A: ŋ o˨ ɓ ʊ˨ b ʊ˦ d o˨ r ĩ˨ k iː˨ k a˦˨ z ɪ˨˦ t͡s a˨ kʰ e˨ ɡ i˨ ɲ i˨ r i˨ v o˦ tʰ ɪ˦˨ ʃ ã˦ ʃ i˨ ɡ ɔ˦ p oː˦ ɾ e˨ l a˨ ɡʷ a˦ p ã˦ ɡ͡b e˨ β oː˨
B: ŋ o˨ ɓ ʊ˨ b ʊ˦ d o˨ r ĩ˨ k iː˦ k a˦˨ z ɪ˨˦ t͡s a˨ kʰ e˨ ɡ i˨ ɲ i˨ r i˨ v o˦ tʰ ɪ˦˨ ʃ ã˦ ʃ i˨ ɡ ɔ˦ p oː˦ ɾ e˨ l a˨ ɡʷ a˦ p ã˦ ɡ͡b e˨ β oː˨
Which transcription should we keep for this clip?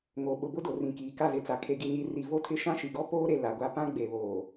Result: A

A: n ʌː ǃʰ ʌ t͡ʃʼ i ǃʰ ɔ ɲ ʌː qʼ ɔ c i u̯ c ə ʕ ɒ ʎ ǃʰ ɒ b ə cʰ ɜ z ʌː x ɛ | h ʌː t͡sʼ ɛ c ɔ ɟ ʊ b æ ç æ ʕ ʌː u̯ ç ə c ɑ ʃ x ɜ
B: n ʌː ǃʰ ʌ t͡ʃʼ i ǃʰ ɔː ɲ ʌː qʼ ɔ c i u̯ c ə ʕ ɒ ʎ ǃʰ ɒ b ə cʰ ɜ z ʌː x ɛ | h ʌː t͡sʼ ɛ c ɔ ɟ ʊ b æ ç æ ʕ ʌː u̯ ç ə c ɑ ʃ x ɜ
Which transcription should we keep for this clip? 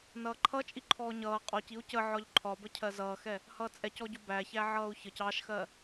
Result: B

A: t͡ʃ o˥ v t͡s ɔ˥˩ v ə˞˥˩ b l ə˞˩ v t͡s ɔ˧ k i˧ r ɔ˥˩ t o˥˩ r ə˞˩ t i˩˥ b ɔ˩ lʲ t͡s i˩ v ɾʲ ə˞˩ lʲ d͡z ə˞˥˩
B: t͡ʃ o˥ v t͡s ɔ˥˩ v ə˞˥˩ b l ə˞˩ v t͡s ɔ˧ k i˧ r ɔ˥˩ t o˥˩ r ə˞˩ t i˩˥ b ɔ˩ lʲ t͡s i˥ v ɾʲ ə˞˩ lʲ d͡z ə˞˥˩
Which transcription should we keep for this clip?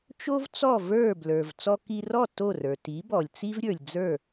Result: B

